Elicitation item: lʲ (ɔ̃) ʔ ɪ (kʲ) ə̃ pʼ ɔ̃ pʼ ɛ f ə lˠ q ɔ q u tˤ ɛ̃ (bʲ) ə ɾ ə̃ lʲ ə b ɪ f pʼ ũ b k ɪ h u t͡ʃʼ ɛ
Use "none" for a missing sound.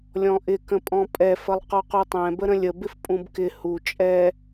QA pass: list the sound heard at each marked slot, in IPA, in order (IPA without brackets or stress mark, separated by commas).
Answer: ɔ̃, k, b